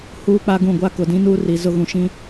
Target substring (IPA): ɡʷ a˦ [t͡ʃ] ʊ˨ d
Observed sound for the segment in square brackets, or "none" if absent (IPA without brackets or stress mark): k